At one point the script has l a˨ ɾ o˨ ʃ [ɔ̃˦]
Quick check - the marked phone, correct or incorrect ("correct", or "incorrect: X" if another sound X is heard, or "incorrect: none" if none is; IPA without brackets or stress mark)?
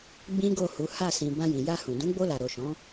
incorrect: ɔ̃˨˦